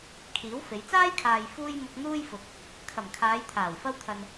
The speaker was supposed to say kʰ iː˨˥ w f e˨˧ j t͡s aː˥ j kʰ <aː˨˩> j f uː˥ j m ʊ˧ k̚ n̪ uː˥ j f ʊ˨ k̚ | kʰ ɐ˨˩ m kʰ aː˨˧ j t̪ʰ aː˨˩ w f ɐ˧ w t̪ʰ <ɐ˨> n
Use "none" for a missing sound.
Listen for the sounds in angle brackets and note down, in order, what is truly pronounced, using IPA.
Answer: aː˨, ɐ˨

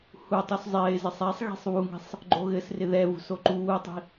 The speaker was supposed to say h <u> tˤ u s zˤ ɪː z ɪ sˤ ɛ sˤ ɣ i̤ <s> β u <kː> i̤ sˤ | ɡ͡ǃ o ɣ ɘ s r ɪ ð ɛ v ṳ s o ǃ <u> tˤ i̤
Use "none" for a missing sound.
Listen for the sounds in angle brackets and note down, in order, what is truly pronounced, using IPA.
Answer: u, sˤ, ŋ, uː

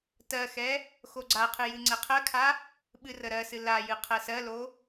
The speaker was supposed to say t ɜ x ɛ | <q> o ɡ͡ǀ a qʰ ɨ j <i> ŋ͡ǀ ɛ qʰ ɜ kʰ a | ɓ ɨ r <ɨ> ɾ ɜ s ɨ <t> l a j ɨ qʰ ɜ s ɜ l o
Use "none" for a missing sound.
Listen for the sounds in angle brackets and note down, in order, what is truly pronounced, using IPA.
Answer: x, ɨ, ə, none

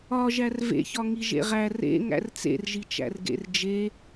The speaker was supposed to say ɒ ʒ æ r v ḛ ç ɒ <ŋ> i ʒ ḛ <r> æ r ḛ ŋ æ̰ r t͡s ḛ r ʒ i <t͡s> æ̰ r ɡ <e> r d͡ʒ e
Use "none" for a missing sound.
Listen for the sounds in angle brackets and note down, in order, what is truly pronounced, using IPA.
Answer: ŋ, ʁ, t͡ʃ, ḛ

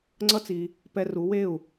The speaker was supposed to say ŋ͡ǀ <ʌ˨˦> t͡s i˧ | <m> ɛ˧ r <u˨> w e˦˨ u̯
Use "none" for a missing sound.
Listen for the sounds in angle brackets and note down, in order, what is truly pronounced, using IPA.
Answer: ʌ˦, p, u˨˦

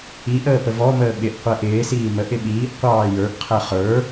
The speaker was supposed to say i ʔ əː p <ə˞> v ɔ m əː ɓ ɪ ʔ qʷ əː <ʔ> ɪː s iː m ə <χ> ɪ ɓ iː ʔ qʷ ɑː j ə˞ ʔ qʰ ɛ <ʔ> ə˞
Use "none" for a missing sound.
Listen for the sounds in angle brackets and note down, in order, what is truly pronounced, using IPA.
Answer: ə, ʔ, ʔ, χ

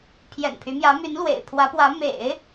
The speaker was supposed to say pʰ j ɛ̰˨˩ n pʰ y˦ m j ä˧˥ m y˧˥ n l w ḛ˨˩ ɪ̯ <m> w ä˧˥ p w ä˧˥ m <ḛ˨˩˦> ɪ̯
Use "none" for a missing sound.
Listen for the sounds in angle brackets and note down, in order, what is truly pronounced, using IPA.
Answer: pʰ, ḛ˨˩˦

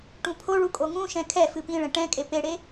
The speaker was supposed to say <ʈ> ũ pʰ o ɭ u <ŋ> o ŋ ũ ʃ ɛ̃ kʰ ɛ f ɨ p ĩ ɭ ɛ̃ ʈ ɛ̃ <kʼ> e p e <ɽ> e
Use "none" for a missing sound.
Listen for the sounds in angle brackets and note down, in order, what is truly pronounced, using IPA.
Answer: ʈ, kʼ, kʼ, ɽ

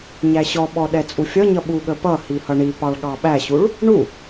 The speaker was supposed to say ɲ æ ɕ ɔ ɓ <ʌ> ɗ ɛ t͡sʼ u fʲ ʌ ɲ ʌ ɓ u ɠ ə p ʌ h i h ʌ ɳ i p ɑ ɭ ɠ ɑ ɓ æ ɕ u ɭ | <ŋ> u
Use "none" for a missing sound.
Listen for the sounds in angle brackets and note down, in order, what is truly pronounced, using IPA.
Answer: ɔ, ɳ

